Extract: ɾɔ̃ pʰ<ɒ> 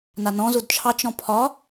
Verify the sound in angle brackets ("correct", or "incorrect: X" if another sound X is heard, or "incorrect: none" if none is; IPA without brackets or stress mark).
correct